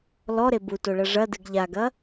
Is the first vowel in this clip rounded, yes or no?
yes